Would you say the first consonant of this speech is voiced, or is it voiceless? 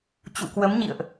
voiceless